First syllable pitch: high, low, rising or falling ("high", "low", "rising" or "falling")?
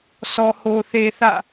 low